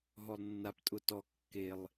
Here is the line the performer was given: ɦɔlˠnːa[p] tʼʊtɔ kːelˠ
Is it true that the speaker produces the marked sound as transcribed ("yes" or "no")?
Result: yes